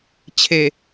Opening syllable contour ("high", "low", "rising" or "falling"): low